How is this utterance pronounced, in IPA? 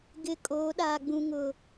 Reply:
ɡ ɪ˨ kʼ oː˨˦ ɗ aː˨ ɡ͡b ũ˦ ŋ ʊ˦

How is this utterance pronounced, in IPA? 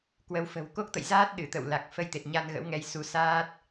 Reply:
k w ə˨˦ w f ə̤˨˩ w k o˦˥ k̚ t̪ ə̰˧˨ j z aː˦˥ t̚ ɗ ɨ˧˩ t̪ ə̰˧˨ w l a˨˩ k̚ f ə˧ j t̪ e˨˩ t̚ ɲ a˧ n ɣ ə̰˧˥ w ŋ ɛ˧ j s u˨˦ s aː˦˥ t̚

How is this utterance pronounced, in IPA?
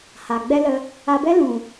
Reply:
h a˨ ɡ͡b ɛ˦ l ə˧ | a˧ b ɛ˦ l ũ˨

